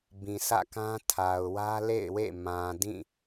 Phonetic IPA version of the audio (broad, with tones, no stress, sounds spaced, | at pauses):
b ĩ˨ sʰ ä̰˦˨ k ã˦ tʰ a˨ ʊ̯ w ä˦ l ḛ˦˨ ɪ̯ w ḛ˦˨ m ã˨ d ĩ˦˨